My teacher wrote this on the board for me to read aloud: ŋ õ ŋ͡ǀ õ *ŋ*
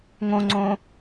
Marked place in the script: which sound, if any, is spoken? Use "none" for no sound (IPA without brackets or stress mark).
none